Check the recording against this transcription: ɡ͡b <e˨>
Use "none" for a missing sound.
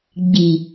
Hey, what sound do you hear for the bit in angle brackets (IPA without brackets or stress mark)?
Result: i˨